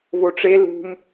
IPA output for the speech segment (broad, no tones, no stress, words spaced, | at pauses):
voʈ͡ʂe lṳm